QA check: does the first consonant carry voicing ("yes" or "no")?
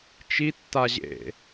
no